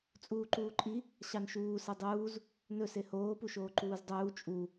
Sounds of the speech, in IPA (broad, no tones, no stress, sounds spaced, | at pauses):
t͡sʼ uː ǃ uː ǃʼ i | ɕ ɑ n ʃ uː s e dˤ uː z | n ɵ s e h oː p u ʃ oː ǃ uː z dˤ uː t͡ʃʼ u